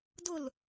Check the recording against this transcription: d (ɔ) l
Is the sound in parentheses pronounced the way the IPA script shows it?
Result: no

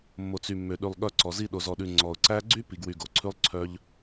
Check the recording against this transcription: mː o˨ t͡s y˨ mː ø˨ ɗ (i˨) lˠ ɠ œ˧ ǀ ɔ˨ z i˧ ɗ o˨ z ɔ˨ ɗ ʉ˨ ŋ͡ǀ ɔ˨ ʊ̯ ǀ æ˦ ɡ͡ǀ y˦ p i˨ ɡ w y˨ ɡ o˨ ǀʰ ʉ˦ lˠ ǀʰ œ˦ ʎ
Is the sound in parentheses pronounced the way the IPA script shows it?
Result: no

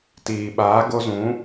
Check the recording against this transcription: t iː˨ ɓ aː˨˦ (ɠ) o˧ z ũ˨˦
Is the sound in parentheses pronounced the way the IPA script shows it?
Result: no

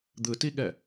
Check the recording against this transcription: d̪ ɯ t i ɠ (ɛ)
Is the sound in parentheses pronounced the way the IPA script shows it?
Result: yes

